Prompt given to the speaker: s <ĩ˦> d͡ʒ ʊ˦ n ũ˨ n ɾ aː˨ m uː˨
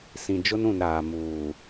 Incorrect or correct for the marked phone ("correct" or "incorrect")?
incorrect